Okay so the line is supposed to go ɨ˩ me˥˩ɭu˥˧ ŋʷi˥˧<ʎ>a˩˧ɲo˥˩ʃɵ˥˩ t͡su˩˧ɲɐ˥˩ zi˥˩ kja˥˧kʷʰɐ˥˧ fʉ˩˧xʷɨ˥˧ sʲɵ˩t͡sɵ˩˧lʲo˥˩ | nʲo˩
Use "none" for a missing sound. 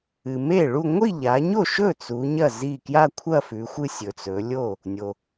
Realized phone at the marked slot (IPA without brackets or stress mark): ʎ